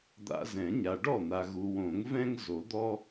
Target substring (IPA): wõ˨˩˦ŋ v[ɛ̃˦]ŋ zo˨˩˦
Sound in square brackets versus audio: correct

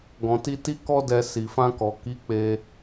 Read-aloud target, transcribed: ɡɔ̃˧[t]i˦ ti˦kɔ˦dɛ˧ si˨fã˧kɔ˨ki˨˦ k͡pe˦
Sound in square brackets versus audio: correct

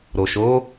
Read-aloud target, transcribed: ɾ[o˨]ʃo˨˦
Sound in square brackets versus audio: correct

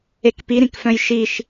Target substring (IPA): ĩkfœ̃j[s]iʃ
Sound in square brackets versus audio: incorrect: ʃ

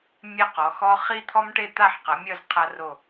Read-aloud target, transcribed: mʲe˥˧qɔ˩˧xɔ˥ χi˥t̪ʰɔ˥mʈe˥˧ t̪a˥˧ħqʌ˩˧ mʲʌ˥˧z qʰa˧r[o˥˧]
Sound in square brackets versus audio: incorrect: o˧˩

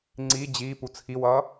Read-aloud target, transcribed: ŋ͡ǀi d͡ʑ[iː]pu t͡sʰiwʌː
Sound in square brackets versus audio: correct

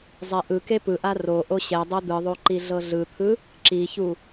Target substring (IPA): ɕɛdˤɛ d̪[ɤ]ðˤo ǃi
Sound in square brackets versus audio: incorrect: ɯ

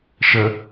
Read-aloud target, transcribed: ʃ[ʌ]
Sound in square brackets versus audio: incorrect: ə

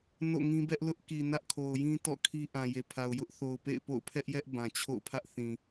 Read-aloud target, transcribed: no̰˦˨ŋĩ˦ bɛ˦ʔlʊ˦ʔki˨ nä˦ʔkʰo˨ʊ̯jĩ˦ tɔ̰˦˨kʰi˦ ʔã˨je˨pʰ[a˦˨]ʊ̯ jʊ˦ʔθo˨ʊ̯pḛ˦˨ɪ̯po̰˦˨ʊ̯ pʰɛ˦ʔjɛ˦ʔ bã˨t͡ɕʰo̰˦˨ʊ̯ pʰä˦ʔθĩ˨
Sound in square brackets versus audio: incorrect: a˨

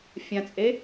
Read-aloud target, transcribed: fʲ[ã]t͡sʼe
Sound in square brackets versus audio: correct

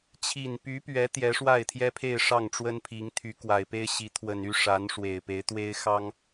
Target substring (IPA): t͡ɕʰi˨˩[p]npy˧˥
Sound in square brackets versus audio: incorrect: none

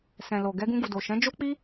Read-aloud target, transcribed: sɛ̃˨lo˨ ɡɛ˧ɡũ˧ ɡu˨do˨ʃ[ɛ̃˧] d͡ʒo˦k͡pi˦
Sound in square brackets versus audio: incorrect: ɛ̃˨˦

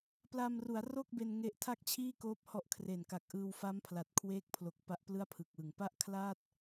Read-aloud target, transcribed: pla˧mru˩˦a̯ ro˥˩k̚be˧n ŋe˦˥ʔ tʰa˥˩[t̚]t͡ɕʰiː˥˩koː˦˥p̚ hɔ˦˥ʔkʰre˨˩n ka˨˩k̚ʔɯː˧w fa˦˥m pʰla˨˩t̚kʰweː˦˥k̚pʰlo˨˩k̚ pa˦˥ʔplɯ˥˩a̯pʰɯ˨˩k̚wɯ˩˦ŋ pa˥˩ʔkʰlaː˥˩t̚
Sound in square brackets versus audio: incorrect: k̚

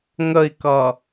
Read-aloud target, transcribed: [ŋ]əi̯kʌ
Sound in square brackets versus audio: correct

